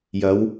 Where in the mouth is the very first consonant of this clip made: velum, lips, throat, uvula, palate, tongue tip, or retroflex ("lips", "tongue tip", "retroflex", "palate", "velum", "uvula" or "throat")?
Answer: palate